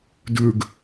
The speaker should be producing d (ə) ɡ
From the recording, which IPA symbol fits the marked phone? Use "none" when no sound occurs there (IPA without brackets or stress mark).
ʉ